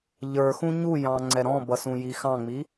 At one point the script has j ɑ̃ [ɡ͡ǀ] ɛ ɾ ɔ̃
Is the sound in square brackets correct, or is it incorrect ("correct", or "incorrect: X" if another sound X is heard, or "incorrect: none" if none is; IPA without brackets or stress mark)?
incorrect: ŋ͡ǀ